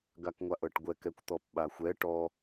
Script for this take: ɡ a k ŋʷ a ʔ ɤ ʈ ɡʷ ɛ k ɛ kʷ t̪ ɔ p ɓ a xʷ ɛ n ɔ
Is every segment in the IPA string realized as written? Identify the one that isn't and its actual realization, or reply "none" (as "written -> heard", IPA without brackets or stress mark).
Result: n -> ʈ